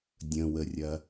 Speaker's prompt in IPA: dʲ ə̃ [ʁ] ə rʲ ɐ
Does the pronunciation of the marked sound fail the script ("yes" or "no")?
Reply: yes